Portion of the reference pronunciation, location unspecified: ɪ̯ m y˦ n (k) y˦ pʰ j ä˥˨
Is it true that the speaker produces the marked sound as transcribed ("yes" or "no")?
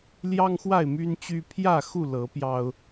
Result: no